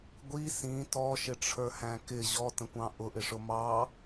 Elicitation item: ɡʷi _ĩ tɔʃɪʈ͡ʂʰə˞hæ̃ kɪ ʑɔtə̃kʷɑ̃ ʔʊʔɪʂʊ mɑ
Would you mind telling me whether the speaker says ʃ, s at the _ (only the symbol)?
s